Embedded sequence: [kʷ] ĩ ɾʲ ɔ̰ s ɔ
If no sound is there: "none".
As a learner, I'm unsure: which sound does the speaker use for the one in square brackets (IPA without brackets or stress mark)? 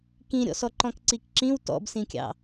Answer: k